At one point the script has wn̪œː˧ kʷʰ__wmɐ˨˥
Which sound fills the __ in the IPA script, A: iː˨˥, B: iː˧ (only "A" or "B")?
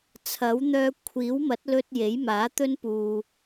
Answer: A